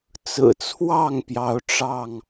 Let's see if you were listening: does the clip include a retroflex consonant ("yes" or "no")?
yes